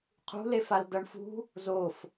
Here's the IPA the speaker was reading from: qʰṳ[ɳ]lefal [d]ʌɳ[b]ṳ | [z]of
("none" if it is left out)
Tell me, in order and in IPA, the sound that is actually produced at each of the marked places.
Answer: none, d, f, z

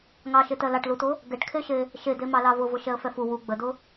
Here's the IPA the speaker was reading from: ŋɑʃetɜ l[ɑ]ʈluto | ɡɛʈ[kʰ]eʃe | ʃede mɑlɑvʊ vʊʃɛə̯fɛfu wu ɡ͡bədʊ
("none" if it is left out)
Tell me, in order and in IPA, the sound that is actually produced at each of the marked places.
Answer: ɑ, kʰ

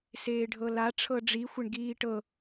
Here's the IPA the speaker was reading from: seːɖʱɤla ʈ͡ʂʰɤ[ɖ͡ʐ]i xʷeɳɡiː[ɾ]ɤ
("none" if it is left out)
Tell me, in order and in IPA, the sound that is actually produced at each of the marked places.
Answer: ɖ͡ʐ, ʈ

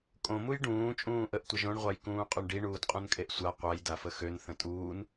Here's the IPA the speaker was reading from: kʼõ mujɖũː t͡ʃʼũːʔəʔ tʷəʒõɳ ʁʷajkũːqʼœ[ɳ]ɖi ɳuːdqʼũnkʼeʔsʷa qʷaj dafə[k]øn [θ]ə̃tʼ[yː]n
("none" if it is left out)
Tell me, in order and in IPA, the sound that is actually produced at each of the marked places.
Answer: ɳ, x, θ, uː

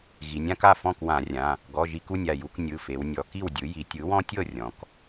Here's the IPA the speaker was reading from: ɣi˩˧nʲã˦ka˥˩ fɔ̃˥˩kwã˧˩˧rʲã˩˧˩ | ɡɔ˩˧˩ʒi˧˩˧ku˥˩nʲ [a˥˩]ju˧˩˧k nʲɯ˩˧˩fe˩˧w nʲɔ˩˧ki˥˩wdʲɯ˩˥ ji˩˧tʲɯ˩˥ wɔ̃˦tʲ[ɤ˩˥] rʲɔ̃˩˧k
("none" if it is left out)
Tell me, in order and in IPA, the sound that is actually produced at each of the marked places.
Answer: a˥˩, ɤ˥˩

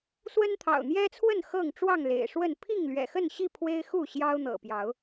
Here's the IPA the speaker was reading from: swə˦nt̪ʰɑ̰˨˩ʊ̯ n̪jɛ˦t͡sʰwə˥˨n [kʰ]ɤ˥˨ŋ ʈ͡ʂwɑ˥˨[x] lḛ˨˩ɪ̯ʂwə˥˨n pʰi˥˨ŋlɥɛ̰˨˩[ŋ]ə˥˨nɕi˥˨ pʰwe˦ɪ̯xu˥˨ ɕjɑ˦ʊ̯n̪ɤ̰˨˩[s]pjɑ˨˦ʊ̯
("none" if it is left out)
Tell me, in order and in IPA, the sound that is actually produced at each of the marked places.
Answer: x, ŋ, x, none

